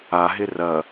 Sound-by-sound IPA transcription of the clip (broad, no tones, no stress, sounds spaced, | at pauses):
a ɦ ɪ r ɐ